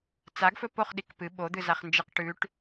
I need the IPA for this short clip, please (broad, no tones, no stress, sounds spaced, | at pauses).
t͡s a ɡ f ɵ p o χ ɗ i k p ɨ ɓ o d̪ ɨ z a χ n d͡ʒ ɨ q ʈ ʉ ʈ